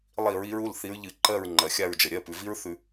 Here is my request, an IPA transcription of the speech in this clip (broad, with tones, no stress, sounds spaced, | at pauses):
lˠ i˧˩˧ ɹ i˨˦ ɹ u˩˧˩ l θ i˨˦ ɹ ʎ ɨ˧˩˧ ǃ ɜ˦˨ ɹ ŋ͡ǃ ɜ˩ xʲ a˦˨ ɹ d͡ʒ ə˩ ɾʲ ɜ˩˧˩ p ʉ˩ v i˦˥ ɹ θ ʉ˧˩˧